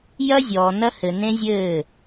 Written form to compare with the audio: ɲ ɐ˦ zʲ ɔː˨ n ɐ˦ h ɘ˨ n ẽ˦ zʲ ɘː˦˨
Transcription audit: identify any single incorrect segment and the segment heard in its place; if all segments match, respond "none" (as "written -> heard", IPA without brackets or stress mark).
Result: ɲ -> j